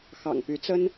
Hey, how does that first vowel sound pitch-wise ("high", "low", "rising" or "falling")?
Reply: low